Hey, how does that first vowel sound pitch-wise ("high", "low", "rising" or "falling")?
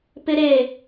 high